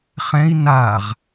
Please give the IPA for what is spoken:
χɛ̃i̯ naʁ

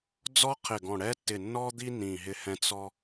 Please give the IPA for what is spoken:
d͡zɔ˥qʰɪ˧˩ɡɔ̃˧˩ ɽɛ˥tːɪ˧˩nːɔ˥d̪i˥ nĩ˧˩ɦɪ˥hɛ̃˥ t͡sɔ˥

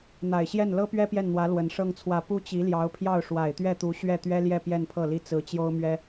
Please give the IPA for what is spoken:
n̪a˨˩ɪ̯ɕjɛ˥˩n lɤ˥pɥɛ˥ pjɛ˥˩nn̪wä˧˥ lwə˧˥nʂɤ˥ŋt͡sʰwä˥˩ pu˥t͡ɕi˧˥ljɑ˧˥ʊ̯pʰjɑ˥˩ʊ̯ ʂwa˨˩ɪ̯t̪ɥɛ˥˩t̪u˧˥ ɕɥɛ˥˩t̪ɥɛ˥ljɛ˥˧ pjɛ˥˧npʰɤ˥˩li˥ t͡sɹ̩˧˥t͡ɕjo˥ʊ̯mɥɛ˥

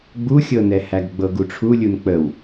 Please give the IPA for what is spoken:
ɡ͡buxʲɤnɛ hæɡɡ͡bɤɡuʈ͡ʂʰu lʲunk͡pəw

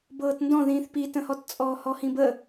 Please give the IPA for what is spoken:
bɤːtndɔ̃ðĩːθ pitə̃hɔt t͡sʼɔːhɔhĩbə

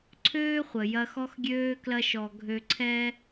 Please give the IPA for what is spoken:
ǀʰøː˥χʷə˩jɐ˧ xɔ˥xɡʲøː˥ klɐ˥ʃɔ˧ ɡʱø˧ ǀʰɛ˥

